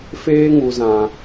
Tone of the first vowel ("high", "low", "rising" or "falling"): high